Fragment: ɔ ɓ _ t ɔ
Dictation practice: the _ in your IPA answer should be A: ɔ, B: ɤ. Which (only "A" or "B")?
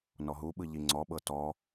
B